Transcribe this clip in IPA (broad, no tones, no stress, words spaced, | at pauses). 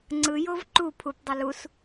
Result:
ŋ͡ǀɯjov ǃu pʰupdˤʌ lus